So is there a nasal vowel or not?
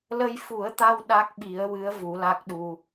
no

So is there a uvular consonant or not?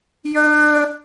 no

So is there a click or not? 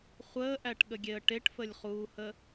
no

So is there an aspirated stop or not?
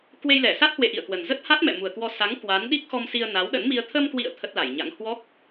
yes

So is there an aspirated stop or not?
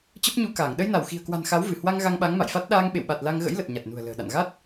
no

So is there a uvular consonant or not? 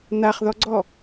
yes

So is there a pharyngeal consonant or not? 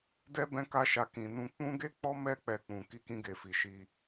no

